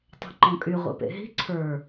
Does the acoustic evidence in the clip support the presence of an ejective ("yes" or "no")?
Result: yes